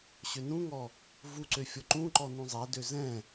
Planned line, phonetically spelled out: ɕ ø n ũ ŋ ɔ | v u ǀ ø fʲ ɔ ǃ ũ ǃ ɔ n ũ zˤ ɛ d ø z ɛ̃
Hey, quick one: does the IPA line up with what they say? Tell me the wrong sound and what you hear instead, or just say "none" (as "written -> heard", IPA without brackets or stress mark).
none